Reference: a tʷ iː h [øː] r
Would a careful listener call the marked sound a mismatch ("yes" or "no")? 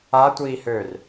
no